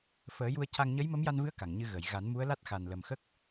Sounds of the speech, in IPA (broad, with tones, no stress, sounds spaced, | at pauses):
f əː˨˩˦ j u˧ ə̯ c a˧ ŋ ɲ ə˧˥ j m ə˧˥ m j a˧ n v ɨ˧˥ ə̯ k a˨˩˨ ŋ ɲ ɨ˧ ɣ ə˨˩˨ j ɣ a˨˩˦ n m u˧˥ ə̯ l a˦˥ t̚ x a˨˩ n l ə˨˩ m x ə˦˥ k̚